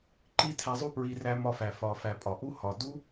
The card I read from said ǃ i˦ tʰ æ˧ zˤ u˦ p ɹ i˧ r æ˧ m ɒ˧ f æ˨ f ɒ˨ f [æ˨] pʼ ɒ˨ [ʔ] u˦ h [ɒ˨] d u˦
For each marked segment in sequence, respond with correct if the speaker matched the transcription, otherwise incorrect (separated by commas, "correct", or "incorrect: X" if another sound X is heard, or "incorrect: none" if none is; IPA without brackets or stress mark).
correct, correct, correct